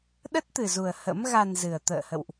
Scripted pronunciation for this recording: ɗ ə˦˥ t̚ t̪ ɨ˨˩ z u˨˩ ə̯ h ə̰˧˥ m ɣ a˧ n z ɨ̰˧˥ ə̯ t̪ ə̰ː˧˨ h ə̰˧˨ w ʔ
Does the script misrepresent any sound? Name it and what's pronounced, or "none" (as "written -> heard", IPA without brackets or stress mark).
ɨ̰˧˥ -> ɨ˨˩